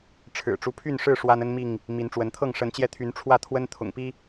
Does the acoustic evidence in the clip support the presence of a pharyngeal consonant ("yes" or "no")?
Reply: no